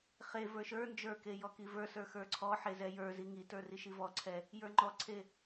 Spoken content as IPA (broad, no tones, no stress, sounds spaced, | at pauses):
χ e v ə˞ ʃ ə˞ n d͡ʒ ə˞ k e j ɔ k i v ə˞ s ə˞ x ə˞ ǀʰ ɔ ħ e z ɛ j ə˞ z i ŋ i t ə˞ r i ʃ i v ɔ ǀʰ ɛ | j ə˞ ŋ͡ǃ ɔ ǀʰ e